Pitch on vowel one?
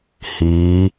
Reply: rising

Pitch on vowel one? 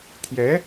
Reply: rising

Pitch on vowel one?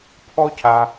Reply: high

